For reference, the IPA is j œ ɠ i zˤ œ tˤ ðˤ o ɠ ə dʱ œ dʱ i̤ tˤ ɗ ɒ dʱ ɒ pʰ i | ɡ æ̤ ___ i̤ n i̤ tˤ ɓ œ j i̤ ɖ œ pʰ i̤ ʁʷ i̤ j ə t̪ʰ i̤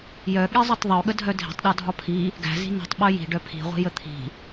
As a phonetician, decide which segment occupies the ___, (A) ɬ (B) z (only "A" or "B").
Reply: B